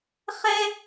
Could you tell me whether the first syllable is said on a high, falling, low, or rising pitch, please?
high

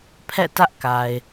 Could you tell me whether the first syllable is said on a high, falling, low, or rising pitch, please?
falling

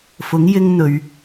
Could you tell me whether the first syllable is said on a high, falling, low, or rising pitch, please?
rising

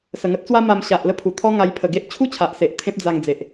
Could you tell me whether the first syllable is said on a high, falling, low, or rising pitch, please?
low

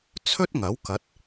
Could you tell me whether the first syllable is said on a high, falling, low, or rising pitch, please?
high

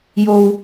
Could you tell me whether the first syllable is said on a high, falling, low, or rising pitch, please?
low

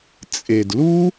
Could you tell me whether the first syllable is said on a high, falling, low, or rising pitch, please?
low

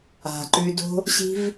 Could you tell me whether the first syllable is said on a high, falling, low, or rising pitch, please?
low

